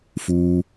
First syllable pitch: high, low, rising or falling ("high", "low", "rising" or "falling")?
high